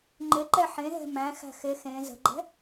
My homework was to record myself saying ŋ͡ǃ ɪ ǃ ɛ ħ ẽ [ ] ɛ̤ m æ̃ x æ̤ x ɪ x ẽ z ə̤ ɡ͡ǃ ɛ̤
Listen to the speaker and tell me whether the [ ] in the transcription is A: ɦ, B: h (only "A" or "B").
A